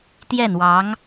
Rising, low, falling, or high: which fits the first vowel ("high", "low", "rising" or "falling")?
falling